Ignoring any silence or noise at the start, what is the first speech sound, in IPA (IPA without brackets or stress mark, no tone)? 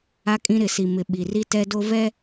a